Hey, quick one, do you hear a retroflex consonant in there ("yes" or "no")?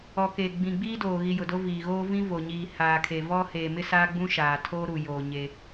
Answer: no